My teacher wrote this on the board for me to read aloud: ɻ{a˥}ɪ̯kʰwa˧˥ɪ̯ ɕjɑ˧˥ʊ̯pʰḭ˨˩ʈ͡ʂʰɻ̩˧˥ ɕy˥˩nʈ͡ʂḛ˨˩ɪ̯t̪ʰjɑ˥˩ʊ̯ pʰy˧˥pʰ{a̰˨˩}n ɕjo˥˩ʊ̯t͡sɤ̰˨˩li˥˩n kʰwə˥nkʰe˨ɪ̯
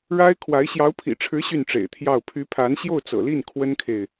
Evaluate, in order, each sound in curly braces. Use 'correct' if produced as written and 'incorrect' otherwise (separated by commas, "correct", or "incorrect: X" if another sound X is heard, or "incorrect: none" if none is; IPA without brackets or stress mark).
correct, incorrect: a˧˥